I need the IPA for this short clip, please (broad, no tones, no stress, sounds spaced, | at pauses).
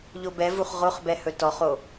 ʎ o b ɛ v u χ ʁ o χ b ɛ h ɵ t ɔ χ o